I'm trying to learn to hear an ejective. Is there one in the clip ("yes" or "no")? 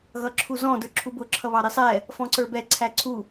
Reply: no